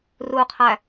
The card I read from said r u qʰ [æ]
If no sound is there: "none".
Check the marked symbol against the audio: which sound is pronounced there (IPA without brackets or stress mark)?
æ